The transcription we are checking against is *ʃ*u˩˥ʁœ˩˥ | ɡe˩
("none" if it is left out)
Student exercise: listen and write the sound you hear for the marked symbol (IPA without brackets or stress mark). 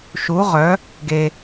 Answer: ʃ